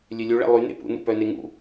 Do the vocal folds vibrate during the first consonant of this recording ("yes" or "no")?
yes